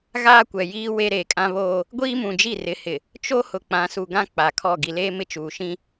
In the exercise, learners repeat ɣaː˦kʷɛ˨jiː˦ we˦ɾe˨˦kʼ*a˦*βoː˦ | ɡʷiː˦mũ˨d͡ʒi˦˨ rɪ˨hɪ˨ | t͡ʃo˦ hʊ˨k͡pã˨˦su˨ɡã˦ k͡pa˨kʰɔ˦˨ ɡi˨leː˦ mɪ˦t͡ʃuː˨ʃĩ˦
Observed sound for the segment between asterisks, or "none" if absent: ã˦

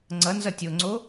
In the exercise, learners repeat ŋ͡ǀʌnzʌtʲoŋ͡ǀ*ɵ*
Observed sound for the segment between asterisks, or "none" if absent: o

